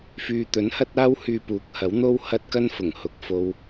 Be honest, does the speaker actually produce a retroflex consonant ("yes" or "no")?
no